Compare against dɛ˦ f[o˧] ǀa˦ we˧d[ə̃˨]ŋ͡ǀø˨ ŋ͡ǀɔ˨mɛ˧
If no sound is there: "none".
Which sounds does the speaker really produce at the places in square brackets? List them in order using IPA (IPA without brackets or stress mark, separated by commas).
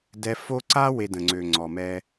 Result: o˦, ə̃˨